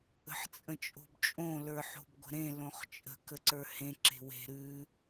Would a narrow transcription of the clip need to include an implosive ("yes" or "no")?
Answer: no